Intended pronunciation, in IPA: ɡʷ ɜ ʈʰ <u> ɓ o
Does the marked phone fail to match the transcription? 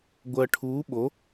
yes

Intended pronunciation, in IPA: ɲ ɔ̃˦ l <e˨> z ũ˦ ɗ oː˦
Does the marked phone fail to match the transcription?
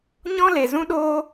no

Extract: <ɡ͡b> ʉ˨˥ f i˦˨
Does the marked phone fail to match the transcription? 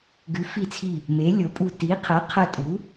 yes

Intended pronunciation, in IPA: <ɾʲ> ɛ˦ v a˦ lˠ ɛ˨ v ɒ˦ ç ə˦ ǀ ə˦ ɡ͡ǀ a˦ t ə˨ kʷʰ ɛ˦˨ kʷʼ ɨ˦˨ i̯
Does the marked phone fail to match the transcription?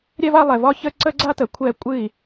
no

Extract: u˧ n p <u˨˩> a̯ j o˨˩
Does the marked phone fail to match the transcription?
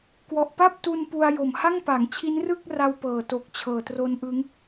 yes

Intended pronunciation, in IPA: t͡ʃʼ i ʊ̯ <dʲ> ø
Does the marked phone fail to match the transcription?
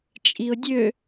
no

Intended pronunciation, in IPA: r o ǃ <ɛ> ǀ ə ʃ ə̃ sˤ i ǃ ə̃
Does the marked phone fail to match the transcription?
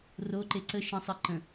yes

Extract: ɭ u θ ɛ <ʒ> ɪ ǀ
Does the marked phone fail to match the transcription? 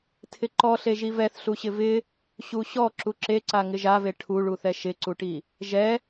yes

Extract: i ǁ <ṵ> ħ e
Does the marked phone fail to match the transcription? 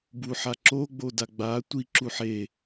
yes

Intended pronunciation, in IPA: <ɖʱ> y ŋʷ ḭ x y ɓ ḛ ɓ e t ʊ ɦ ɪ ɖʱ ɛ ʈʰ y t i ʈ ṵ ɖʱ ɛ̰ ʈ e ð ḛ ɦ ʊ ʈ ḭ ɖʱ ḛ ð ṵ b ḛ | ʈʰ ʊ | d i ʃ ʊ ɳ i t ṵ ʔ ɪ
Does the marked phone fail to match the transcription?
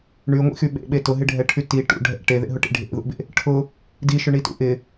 yes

